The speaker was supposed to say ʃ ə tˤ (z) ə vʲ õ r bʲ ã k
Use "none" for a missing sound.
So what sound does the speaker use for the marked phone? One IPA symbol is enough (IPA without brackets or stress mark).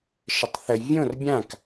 θ